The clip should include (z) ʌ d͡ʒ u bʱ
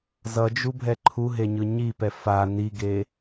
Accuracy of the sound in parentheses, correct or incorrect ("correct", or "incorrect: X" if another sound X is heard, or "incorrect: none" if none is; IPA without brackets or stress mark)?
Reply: correct